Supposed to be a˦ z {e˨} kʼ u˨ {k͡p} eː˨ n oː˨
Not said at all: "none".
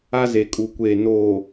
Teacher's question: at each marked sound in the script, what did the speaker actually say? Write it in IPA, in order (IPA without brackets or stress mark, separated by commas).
e˨, kʷ